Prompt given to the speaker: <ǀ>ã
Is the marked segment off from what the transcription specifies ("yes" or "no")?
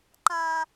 yes